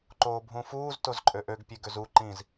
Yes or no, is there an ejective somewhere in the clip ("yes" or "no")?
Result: yes